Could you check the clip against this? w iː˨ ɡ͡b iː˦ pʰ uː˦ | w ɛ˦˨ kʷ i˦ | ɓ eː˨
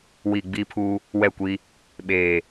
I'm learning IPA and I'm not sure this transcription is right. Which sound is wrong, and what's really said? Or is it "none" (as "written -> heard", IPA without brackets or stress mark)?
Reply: none